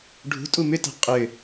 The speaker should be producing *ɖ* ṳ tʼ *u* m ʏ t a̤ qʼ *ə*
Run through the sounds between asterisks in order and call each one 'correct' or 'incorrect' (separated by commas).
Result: incorrect, correct, incorrect